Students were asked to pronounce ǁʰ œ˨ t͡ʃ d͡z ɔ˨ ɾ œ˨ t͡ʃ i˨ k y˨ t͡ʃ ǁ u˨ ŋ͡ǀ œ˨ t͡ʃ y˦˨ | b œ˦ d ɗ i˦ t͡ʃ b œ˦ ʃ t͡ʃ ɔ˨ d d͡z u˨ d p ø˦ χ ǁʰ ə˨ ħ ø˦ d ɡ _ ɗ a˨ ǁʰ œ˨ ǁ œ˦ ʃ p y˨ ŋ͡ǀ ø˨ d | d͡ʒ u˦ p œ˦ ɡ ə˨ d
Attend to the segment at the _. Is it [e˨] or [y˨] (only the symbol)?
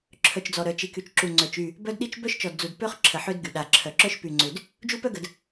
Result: y˨